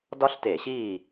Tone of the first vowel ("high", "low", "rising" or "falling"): high